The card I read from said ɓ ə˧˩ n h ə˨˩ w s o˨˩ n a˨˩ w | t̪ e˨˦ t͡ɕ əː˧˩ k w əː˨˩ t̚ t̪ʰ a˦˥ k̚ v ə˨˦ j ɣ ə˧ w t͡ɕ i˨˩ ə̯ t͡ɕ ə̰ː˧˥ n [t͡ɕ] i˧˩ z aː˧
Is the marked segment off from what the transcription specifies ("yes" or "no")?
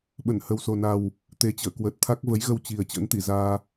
yes